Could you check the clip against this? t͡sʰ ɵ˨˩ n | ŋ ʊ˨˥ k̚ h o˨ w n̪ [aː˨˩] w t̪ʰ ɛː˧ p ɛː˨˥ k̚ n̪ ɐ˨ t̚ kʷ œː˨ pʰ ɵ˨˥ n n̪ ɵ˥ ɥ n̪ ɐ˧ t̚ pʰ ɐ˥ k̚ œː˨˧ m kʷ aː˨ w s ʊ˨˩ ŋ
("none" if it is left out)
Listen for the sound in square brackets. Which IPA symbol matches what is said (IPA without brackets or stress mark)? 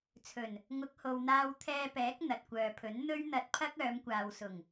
aː˧